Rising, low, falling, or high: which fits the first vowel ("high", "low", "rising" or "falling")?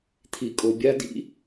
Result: low